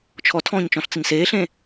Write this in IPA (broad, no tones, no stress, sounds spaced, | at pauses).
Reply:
t͡ʃʰ ɔ tʰ ɔ̃ː ɲ t͡ʃ ɔ̃ ɬ t͡s ə ɲ s eː ɬ ẽ